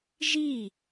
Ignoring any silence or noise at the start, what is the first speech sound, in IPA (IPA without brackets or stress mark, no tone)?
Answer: ʒ